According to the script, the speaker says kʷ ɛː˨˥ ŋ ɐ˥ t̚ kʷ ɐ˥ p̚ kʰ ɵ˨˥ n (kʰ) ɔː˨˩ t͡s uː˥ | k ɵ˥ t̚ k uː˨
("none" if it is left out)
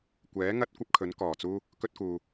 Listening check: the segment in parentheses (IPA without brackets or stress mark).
k